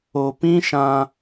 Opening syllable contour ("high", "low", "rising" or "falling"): low